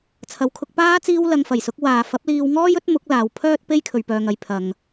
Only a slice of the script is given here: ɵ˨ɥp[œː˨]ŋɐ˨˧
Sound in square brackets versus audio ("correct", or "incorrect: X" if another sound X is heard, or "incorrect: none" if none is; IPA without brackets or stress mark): correct